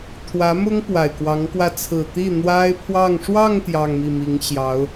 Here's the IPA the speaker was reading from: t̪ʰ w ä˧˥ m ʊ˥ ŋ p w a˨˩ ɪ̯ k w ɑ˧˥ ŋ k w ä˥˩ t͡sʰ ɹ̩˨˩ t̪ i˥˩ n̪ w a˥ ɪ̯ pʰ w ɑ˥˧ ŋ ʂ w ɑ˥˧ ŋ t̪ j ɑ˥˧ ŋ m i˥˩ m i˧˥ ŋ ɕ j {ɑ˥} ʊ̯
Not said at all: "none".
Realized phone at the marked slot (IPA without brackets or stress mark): ɑ˧˥